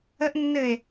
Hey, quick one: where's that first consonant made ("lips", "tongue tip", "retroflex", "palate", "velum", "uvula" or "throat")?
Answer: throat